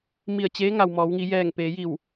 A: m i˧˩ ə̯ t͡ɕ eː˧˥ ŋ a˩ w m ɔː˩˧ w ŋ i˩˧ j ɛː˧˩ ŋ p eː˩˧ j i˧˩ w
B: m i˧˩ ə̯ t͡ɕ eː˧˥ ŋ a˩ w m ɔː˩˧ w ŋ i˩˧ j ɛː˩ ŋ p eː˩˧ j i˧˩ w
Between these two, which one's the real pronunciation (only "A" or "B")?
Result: A